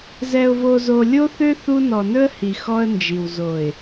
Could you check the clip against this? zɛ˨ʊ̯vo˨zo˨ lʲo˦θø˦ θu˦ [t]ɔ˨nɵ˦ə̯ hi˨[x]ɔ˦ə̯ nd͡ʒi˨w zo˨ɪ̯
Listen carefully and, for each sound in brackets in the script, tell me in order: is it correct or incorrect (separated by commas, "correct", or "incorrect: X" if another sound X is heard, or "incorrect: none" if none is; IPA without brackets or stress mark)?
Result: incorrect: n, correct